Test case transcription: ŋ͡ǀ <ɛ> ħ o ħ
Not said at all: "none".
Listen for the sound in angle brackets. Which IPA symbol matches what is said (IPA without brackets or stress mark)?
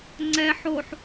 ɛ